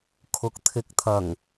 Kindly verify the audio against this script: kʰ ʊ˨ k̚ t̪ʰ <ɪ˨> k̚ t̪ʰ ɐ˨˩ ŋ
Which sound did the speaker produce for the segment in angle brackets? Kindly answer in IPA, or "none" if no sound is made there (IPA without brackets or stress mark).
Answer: ɪ˨